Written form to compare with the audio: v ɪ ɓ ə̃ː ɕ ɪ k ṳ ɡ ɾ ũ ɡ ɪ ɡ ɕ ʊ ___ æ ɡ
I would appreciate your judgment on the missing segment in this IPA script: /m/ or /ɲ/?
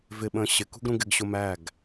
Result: m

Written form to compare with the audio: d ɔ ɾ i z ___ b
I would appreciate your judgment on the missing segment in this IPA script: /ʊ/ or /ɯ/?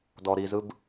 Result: ɯ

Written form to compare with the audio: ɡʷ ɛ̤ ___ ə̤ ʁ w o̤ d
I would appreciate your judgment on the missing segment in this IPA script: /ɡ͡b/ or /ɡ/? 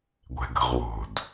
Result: ɡ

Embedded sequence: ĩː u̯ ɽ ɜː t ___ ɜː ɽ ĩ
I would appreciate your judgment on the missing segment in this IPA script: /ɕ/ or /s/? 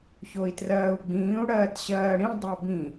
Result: ɕ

